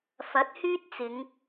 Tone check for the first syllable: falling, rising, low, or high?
rising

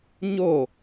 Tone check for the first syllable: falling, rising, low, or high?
falling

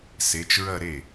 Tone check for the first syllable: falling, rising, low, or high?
rising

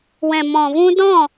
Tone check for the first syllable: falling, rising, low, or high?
low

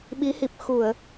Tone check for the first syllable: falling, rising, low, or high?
rising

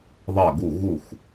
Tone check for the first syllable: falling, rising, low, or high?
falling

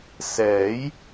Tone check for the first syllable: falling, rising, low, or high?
rising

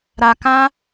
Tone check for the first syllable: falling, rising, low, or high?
low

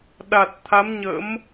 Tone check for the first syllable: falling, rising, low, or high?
low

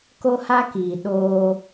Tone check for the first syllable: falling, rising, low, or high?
high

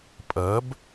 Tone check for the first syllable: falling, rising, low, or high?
rising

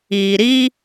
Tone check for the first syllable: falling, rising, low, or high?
low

